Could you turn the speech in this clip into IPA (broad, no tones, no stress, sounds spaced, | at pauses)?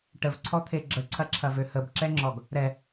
ʈ ə v ǀʰ ɔ t̪ʰ e ɡ͡ǁ ə ǀʰ ɐ ǁʰ ɐ v ø h ə b ǁ ɛ ŋ͡ǁ ɔ ɡ | ɾ ɛ